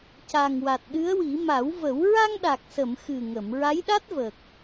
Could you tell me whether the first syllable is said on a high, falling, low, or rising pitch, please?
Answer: low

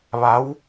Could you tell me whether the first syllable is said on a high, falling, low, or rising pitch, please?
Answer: rising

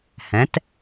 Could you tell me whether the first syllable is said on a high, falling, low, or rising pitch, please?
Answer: rising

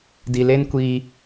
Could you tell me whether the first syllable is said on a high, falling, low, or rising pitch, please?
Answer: low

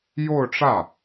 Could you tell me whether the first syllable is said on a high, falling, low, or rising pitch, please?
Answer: falling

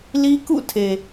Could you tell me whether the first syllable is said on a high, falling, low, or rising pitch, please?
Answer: high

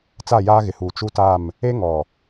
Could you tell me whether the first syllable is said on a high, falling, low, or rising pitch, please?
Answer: falling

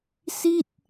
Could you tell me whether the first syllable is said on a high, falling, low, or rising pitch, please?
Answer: falling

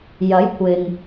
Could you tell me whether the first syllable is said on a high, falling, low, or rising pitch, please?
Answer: rising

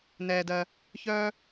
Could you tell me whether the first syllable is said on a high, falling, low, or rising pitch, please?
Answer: low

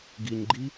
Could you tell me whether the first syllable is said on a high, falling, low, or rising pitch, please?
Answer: low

